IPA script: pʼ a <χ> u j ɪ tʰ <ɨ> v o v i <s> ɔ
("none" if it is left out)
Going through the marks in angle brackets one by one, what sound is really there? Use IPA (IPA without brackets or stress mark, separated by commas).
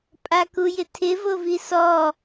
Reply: k, ɪ, s